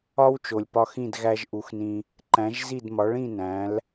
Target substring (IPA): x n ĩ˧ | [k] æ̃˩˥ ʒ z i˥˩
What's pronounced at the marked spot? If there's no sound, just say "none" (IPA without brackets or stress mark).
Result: ǃ